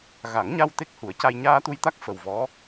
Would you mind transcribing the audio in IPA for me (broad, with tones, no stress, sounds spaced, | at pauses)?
ɣ a˨˩˦ ŋ ɲ a˧ w t̪ e˦˥ k̚ h u˨˩˦ ə̯ c a˧ j ɲ aː˧ t̪ u˧ j t̪ a˦˥ k̚ f ə˨˩ w v ɔ˧˥